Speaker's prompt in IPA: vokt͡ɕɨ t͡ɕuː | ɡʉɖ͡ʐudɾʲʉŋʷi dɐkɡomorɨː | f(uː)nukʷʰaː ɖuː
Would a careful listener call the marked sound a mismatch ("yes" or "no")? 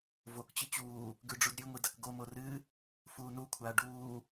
no